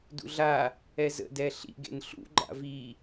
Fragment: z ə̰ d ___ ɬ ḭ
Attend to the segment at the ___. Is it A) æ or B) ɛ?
B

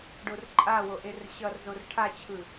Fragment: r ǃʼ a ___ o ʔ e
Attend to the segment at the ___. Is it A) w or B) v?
A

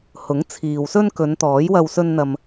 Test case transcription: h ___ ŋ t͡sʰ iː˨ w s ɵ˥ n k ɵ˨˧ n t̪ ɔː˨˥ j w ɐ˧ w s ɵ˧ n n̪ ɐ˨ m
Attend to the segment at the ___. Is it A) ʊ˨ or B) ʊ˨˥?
B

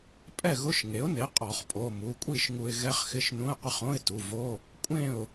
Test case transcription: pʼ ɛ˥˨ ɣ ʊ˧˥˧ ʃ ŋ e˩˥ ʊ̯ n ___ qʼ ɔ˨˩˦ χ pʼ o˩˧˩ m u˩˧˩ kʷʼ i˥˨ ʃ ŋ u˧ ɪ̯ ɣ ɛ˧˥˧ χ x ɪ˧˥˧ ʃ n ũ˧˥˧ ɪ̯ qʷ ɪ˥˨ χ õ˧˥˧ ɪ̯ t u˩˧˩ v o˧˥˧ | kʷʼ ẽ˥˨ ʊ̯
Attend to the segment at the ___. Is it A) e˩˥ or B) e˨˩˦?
A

